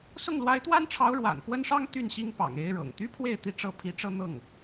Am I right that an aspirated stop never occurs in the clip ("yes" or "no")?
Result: no